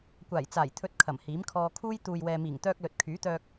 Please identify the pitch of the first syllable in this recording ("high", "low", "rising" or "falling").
low